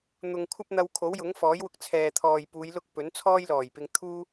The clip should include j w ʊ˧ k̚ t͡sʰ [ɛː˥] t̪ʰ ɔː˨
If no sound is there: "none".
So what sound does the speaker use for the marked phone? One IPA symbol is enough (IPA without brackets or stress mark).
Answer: ɛː˨